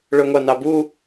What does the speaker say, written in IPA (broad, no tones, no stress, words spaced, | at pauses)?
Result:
ɭɵŋʷɑnɑbu